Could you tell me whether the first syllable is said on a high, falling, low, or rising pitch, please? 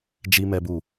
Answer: high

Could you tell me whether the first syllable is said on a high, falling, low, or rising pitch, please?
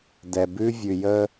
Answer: low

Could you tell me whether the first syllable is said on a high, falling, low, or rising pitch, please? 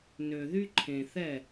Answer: low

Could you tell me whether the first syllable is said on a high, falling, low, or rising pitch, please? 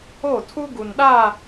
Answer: falling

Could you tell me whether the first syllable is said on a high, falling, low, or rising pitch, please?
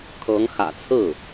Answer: rising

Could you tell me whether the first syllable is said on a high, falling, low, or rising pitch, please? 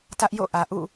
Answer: high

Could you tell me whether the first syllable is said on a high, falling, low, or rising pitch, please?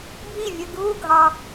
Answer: falling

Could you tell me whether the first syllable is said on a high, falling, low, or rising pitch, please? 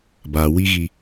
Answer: low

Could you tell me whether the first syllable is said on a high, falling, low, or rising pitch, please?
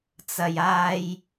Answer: low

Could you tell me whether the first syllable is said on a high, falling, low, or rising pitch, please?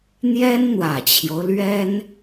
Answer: high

